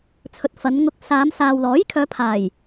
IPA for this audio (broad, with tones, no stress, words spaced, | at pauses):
t͡sʰɵ˨t̚ fɐ˨˧nŋʊ˧k̚ saː˨˧m saː˨wlɔː˨˥jkʰœː˨˧ pʰaː˨˩j